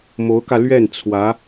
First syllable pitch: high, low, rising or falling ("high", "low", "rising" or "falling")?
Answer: rising